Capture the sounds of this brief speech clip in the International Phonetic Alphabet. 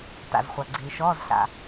ta̰˩zχʷa˩ ɡ͡ǀiː˩ʃɔː˧˥˧zɬa̰˩

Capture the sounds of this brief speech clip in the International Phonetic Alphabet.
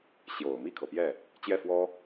ɕjo˨˩ʊ̯ mi˥˩kʰɤ˩pjɛ˥˩ | t͡ɕjɛ˥˩fwɔ˥

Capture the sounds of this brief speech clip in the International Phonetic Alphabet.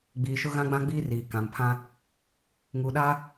ɡ͡biː˨ʃʊ˦ ɣã˦ɡ͡bã˦ɡ͡biː˦ riː˨ kã˨mpʰã˦ | ŋuː˨ɗaː˦

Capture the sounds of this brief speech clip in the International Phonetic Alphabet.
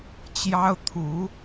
t͡ɕjɑ˥ʊ̯t̪ʰu˧˥

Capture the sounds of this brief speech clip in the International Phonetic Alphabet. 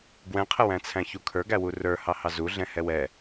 ɡwɛ̃qʰəwæ̃t͡sʰæ̃ çukʰə˞ɡæwu rə˞hɑhɑ zuɮɛ̃ hɛwɛ

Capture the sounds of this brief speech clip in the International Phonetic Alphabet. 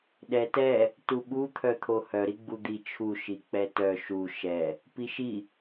ɗɛtɛ | tuɓu t̪ʰœt̪ʰohœ ɾiɡ͡bud̪i t͡ʃʰu ʃik͡pɛtœ ʃu ʃɛ | piʃi

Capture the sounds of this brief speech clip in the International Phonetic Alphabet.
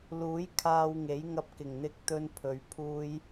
luː˨˥j kʰaː˧wŋe˨˥jŋɐ˧p̚ kɪ˨˩ŋn̪ɪ˧k̚t̪ɵ˧n pʰɵ˨˧ɥ pʰuː˧j

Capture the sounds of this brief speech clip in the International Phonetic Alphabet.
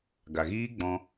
ɡa˨ɣiː˦ɡ͡bɔ̃˧

